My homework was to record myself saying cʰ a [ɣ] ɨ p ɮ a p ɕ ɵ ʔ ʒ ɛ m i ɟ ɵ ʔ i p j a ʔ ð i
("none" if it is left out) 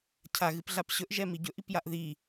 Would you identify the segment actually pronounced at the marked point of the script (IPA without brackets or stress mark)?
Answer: ɣ